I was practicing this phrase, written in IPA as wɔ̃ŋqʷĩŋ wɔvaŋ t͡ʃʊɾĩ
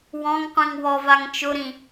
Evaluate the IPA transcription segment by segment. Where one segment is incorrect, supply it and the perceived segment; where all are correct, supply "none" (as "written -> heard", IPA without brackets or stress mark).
none